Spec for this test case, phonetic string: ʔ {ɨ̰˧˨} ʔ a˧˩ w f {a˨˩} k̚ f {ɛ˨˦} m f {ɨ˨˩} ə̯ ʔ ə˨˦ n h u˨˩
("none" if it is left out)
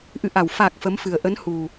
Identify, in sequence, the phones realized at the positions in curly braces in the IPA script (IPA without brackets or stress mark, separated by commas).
ɨ̰˧˨, a˨˩, ə˨˦, ɨ˨˩